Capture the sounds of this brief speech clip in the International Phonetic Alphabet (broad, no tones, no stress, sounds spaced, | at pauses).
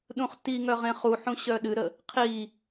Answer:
ɗ ũ χ t i ŋ œ ʁ ẽ χ u ħ ũ ɕ œ ɗ ɨ ɾ ə | qʰ i